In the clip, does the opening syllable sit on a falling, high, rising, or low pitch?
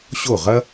falling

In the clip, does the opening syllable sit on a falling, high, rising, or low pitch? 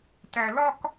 high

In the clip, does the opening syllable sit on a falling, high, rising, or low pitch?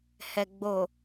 low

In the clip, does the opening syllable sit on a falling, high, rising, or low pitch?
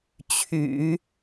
low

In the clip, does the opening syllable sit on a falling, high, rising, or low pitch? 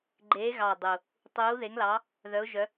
rising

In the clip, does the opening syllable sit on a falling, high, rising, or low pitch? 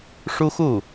high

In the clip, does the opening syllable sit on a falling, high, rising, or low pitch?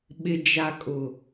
low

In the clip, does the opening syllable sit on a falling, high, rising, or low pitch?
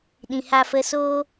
low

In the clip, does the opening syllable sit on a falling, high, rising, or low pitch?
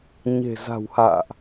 low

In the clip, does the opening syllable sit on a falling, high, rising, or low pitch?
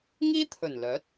high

